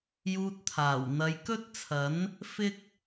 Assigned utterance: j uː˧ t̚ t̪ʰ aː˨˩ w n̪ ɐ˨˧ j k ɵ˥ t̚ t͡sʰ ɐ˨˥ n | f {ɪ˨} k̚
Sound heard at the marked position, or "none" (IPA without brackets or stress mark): ɪ˥